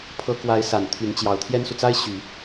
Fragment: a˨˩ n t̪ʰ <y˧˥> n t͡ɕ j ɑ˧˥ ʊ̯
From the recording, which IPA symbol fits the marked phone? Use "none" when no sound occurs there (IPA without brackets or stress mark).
y˧˥